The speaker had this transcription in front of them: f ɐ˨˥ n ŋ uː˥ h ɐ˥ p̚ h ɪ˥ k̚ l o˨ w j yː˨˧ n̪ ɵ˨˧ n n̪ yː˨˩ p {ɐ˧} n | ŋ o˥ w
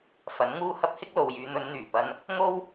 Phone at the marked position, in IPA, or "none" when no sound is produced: ɐ˧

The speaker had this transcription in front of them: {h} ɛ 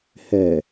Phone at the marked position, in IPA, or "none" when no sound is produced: h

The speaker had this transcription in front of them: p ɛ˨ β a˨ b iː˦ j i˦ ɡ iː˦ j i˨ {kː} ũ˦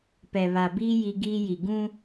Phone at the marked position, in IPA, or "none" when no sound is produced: ɡ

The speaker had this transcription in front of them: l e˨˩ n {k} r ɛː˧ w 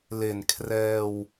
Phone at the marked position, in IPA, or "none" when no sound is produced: kʰ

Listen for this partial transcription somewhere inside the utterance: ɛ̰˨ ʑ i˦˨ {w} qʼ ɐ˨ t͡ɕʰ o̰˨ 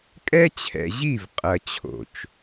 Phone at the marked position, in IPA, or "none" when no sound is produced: v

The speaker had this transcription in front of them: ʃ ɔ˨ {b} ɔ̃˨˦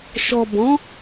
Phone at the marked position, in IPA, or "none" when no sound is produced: b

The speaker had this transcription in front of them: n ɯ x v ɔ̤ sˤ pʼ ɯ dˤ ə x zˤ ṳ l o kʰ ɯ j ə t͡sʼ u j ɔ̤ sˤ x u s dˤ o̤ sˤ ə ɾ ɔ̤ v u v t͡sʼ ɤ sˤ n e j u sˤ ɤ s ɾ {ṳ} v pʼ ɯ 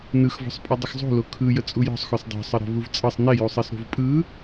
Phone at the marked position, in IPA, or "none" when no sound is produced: o̤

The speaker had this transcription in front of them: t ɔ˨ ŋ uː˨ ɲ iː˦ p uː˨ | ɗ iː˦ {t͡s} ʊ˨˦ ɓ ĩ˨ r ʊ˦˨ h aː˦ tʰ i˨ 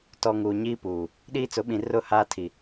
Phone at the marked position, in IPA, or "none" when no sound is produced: t͡s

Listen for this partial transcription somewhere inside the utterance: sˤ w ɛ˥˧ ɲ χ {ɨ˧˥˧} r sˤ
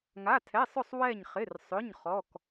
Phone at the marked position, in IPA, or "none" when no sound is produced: ɪ˧˥˧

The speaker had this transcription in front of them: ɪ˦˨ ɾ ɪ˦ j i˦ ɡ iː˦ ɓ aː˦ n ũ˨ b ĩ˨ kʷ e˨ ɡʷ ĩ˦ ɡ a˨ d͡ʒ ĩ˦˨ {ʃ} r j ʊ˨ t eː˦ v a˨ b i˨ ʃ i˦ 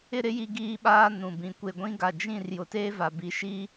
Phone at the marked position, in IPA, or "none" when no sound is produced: none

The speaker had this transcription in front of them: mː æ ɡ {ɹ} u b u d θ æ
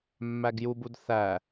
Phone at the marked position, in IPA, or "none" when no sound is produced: j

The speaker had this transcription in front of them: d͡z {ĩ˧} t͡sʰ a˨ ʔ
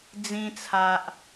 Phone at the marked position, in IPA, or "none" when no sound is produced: ĩ˧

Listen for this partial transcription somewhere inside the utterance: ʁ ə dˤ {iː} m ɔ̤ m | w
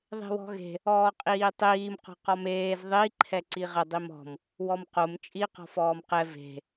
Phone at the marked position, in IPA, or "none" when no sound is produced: i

